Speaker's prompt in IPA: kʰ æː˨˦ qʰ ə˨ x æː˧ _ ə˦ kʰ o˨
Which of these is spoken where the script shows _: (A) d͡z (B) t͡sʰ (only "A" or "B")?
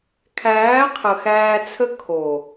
B